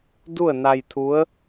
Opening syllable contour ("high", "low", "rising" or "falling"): falling